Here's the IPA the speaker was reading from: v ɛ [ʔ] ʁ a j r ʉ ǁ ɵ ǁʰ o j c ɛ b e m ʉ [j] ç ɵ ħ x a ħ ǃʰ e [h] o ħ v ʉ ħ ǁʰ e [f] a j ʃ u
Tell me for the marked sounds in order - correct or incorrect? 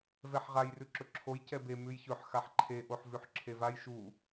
incorrect: ħ, correct, incorrect: ʔ, incorrect: v

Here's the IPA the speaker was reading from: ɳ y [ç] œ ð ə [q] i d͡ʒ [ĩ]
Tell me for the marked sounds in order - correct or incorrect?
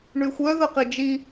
incorrect: xʷ, correct, incorrect: i

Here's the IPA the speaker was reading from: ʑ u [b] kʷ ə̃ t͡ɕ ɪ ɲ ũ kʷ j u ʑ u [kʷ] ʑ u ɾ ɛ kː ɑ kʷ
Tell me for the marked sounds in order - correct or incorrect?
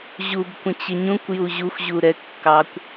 correct, incorrect: xʷ

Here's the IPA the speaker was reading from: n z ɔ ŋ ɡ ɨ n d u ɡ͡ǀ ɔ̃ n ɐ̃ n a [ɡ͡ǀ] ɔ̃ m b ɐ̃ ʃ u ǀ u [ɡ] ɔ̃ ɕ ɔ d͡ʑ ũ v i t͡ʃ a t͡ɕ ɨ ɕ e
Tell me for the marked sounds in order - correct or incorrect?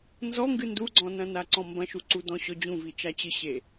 incorrect: ǀ, incorrect: d

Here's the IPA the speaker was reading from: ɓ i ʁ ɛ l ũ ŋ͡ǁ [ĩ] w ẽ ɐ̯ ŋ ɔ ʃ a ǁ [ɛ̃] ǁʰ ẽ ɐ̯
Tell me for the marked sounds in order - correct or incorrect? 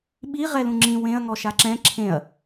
correct, correct

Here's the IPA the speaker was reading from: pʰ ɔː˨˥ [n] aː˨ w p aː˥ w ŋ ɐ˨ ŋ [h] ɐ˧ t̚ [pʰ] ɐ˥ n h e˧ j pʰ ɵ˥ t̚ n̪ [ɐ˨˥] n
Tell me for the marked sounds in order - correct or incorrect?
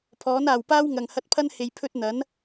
correct, correct, correct, correct

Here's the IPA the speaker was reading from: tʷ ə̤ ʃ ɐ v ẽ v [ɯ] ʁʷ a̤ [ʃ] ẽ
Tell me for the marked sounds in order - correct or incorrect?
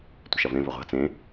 incorrect: ə, incorrect: t͡s

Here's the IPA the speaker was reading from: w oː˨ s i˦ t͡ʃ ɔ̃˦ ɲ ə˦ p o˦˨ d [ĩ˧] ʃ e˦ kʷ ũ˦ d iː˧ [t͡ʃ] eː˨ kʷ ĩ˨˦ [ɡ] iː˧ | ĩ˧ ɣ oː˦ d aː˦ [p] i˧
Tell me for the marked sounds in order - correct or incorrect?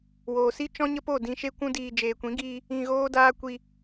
correct, incorrect: d͡ʒ, correct, incorrect: kʷ

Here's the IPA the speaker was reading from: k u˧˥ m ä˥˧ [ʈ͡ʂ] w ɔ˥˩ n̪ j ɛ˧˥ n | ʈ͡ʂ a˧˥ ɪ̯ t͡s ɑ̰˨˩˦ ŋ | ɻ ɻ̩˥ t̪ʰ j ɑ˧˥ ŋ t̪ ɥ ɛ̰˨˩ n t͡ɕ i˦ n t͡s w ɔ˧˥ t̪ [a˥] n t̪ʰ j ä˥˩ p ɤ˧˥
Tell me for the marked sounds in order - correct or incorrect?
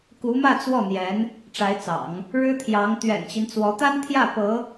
incorrect: t͡s, correct

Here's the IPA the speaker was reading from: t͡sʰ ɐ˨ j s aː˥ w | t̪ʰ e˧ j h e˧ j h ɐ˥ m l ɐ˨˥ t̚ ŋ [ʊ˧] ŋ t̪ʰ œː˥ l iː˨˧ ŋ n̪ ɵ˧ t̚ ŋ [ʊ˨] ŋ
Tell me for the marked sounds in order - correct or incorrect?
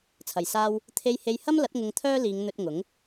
correct, incorrect: ʊ˨˥

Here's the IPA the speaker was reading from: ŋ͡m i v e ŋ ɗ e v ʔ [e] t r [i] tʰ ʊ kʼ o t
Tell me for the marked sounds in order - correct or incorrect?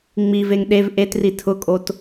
correct, correct

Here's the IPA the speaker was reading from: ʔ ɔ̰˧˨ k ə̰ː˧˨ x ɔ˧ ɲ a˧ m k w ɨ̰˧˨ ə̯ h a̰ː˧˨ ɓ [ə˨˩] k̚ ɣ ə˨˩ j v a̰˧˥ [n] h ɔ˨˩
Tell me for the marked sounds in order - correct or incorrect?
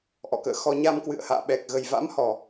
incorrect: ɛ˨˩, incorrect: m

